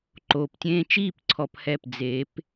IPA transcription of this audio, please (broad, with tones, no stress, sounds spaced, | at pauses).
ǃ oː˩ p tʲ ẽː˧ t͡ʃ iː˥˩ p ǀʰ ɔ˧ p h ɛ˥˩ p d͡z e˩˥ p